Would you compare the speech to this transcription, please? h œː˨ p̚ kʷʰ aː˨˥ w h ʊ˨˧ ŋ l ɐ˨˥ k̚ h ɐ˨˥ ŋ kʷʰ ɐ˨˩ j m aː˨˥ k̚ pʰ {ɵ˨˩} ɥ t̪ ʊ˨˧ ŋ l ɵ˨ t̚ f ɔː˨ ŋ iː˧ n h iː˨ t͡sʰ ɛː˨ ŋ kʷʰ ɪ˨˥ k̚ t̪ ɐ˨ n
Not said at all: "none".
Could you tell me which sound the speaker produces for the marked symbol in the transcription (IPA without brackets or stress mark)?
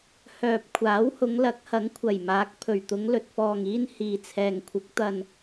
ɵ˨˩